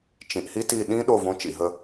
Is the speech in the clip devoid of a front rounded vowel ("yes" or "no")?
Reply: yes